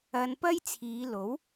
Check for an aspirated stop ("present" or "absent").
present